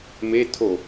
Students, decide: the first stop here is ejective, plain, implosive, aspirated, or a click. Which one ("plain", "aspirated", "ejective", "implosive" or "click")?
aspirated